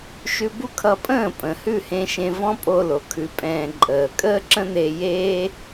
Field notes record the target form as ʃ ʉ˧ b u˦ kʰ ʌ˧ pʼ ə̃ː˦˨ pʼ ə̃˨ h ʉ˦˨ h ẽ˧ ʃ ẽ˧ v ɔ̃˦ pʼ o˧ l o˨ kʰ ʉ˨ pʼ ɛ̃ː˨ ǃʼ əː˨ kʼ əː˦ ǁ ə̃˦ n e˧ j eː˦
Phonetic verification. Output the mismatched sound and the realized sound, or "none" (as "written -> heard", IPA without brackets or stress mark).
none